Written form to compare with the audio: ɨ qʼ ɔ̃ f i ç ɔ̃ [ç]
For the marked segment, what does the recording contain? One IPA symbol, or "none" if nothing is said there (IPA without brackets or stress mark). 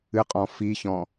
none